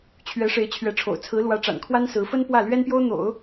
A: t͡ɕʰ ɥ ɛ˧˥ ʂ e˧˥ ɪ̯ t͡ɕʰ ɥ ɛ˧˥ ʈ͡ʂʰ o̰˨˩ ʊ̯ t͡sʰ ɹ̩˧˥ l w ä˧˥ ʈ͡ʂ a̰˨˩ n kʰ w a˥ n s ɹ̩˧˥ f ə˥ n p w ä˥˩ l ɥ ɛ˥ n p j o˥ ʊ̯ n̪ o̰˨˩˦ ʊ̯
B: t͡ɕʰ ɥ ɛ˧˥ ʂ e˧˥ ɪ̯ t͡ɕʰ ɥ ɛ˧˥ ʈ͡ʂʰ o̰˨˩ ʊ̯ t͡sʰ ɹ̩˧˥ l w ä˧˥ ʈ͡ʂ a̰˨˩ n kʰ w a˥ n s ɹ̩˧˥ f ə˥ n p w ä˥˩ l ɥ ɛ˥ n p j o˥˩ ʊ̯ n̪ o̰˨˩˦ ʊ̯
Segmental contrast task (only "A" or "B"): A